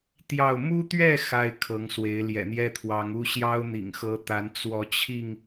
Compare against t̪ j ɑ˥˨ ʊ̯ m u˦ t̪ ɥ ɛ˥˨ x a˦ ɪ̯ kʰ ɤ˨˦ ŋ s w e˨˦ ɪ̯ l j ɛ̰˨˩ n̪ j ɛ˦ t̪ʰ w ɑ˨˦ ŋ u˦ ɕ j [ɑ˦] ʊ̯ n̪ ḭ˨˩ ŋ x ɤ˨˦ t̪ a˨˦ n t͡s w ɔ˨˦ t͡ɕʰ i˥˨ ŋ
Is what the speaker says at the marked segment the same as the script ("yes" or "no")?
yes